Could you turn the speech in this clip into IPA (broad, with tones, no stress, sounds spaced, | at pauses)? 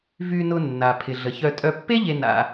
v y˨ n ʊ˨ nː a˩ pʰ ɪ˩ ɮ ə˩ ç œ˨ tʼ œ˨ pː e˥ ʎ e˨ n a̰˨